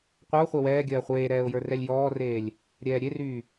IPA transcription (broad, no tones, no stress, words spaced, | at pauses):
qʷə˞ʊ̯χʷœ wɛːɡʲɜː χʷeːɾɛːʊ̯ jə˞rɛlʲjɔːreːlʲ | ɾʲɛːɾʲeryː